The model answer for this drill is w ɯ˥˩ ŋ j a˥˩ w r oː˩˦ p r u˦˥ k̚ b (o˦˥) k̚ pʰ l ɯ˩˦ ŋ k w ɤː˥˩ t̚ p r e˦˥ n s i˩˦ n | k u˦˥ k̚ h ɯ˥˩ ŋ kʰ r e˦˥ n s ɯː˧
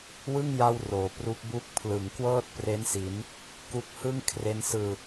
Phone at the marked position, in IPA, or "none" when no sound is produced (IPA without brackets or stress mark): u˦˥